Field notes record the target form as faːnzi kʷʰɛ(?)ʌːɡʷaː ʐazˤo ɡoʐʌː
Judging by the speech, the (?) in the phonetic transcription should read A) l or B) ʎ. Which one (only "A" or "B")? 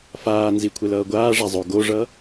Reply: A